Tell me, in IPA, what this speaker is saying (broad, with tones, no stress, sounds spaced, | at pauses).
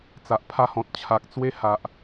t͡s a˨ ʔ pʰ a˧ h ɔ̃˨ t̚ t͡ɕʰ a˨ k̚ t͡s w e˦ h a˨ ʔ